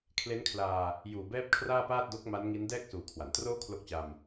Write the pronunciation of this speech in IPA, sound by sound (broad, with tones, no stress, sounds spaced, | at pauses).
kʰ l e˦˥ n kʰ l aː˧ | j uː˨˩ b ɛː˥˩ p̚ kʰ r aː˥˩ p aː˥˩ t̚ d o˦˥ k̚ m a˦˥ n ŋ i˦˥ n d ɛː˥˩ k̚ s uː˨˩ kʰ w a˩˦ n t r oː˥˩ kʰ l o˦˥ k̚ t͡ɕ a˧ m